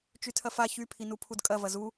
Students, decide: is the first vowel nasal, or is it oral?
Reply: oral